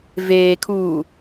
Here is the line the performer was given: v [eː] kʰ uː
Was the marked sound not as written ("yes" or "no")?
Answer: no